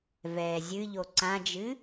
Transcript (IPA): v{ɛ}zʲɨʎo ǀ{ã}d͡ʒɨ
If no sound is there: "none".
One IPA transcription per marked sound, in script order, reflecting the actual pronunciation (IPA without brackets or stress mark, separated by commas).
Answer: ɛː, ã